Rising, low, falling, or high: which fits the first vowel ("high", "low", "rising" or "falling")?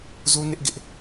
high